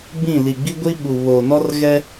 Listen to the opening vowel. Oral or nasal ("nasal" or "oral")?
nasal